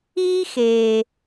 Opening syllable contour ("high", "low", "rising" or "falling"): high